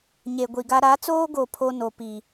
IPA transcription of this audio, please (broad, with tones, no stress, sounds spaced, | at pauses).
ɲ e˨ ɡʷ i˨ ɡ a˦ ɾ a˨˦ t͡s oː˦ ɡ o˨ pʰ o˦ n o˨ p iː˨